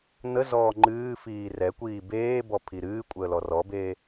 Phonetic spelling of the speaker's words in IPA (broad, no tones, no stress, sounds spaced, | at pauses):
n̪ ə z ɔː ŋ͡ǃ ɨː f iː r ɛ kʷ iː b eː b ɔ pʰ i ɾ ɨː kʷʼ əː l ɔ r ɔ b eː